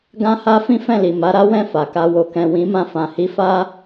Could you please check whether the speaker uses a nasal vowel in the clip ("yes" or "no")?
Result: yes